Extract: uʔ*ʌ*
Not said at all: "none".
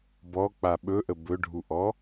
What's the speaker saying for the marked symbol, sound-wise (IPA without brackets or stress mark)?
ɔ